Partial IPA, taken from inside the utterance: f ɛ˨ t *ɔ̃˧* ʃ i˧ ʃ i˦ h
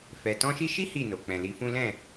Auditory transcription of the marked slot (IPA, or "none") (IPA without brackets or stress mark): ɔ̃˧